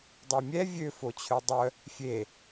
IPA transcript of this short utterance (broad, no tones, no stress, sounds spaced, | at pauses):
dˤ ø mʲ ɛ vʲ ø f o t͡ɕʰ ø dˤ œ | fʲ e